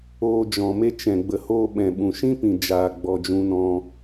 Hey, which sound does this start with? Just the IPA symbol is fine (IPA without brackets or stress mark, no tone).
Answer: oː